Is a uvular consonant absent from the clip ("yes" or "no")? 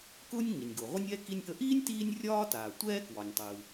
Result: no